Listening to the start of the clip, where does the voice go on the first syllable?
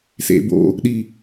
low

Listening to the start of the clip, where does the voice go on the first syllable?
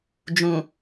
low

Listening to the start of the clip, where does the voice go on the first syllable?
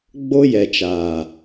high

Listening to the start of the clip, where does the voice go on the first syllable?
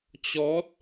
rising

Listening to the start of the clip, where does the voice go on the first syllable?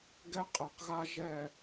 high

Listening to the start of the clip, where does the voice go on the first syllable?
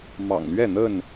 low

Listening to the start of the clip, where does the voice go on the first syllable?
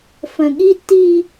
low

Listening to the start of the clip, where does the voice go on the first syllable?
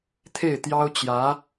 falling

